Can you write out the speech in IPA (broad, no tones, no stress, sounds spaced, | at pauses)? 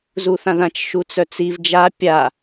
z u θ ã ð ã t͡ʃ ʃ u t͡s œ t͡s i v d͡ʒ a pʲ a